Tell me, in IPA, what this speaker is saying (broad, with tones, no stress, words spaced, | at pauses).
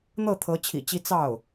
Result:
n̪ɤ˥˩t̪ʰɤ˧˥ t͡ɕʰḭ˨˩t͡ɕi˧˥ t͡sɑ˥˩ʊ̯